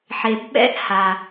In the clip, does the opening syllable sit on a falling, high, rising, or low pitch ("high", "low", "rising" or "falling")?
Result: low